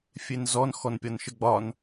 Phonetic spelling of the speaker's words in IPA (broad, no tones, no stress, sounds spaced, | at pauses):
fʲ e n z ɔ n x ɔ n pʲ ɒ n ʃ ə ɡ͡b ɒ n